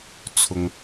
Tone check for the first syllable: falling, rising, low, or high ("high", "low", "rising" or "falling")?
low